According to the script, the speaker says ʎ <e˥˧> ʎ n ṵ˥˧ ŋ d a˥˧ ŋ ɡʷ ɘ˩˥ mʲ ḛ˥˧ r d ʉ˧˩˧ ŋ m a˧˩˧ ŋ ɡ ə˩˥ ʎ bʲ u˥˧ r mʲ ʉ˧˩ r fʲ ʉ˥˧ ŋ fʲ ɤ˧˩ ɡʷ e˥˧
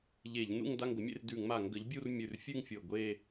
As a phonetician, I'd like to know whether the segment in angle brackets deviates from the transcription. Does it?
yes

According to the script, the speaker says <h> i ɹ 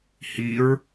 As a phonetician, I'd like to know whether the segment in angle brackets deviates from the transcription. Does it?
no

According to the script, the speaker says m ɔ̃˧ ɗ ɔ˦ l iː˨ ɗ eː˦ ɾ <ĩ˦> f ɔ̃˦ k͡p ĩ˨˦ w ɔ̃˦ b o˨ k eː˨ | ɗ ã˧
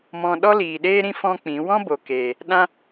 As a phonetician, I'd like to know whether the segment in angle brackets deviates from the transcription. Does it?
no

